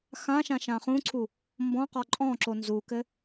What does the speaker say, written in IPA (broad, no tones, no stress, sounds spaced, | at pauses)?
x ã ʃ ã ʃ ã χ ũ ǀʰ u | m b ɔ̃ q ɔ ǃʼ ɔ̃ ǁ o n z u k ɘ